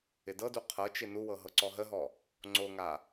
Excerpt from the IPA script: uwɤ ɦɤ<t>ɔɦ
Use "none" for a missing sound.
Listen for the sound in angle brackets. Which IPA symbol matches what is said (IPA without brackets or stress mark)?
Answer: ǀ